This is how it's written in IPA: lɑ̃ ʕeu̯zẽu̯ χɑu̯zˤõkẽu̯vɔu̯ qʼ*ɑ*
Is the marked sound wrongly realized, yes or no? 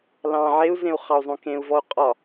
yes